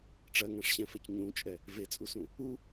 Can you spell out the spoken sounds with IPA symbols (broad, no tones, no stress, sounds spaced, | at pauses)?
ʈ͡ʂ ɜ ŋ ã ʂ ɕ ɛ̃ f ɛ c ɲ ũ t͡ʃʼ ɛ | v e t͡sʼ u s ũ | u